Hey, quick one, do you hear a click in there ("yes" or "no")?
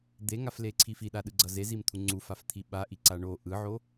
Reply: yes